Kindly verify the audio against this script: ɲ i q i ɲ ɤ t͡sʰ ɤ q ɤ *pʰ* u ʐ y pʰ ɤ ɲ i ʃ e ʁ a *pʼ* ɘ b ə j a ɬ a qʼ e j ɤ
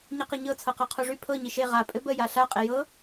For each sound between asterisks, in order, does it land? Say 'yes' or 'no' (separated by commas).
no, yes